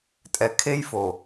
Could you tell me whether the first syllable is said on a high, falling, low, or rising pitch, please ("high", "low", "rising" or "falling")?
low